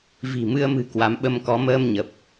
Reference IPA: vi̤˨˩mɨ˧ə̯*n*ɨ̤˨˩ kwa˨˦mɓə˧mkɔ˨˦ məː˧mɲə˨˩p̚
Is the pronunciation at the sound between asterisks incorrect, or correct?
incorrect